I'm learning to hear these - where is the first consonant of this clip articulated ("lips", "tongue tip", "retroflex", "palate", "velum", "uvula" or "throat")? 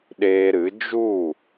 tongue tip